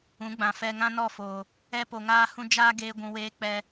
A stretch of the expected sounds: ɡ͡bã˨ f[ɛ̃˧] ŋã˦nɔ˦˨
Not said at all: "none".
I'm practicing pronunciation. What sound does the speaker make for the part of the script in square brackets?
ɛ˧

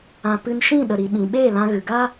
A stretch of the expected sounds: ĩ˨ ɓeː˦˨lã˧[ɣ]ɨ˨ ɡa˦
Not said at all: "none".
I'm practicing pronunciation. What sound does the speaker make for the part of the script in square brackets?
ɣ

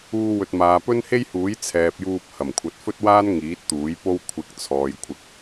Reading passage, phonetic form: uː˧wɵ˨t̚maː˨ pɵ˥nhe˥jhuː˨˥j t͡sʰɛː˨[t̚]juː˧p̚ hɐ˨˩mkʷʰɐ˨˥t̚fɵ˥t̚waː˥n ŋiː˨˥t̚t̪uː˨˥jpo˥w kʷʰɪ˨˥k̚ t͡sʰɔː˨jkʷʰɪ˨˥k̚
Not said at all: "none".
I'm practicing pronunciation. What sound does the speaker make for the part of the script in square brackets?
p̚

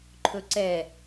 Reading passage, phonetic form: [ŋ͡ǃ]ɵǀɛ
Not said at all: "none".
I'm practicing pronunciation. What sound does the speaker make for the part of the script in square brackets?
ǃʰ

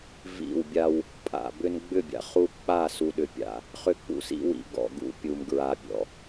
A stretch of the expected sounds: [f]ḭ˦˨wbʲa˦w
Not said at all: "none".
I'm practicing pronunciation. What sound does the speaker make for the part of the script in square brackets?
v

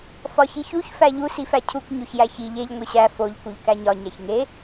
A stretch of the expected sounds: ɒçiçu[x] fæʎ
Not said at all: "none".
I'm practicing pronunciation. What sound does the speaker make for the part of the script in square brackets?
ç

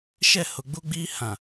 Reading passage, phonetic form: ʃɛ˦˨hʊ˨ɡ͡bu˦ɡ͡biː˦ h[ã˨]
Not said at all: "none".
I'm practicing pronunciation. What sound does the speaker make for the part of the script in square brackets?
ã˨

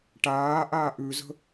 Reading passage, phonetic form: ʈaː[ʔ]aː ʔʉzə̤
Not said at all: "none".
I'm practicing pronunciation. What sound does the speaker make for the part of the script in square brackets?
ʔ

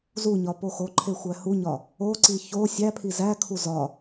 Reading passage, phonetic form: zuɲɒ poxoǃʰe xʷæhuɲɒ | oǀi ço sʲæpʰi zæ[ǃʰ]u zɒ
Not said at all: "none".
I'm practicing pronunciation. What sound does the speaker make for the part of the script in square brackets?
kʰ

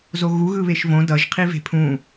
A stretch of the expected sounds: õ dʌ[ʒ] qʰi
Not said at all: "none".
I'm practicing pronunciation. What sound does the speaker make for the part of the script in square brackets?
ʒ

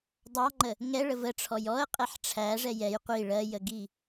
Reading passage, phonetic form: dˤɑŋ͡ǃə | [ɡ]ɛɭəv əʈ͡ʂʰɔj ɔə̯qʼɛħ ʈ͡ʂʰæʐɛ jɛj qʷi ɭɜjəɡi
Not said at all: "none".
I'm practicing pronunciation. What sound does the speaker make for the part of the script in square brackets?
ŋ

